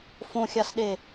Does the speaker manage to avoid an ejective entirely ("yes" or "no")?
yes